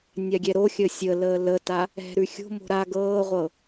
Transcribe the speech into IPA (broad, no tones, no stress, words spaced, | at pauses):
nʲaɡʲɛɾoxʲəː sʲə ləːləta | ɛ̤ɾʉ xʲo̤mo̤ ɾa ɡɤːʁʷɤ